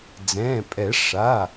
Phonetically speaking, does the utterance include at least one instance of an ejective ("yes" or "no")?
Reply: yes